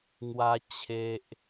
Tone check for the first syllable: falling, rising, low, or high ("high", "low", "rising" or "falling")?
high